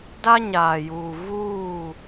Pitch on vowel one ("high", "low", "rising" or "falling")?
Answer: high